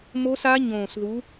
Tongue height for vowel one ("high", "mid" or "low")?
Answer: mid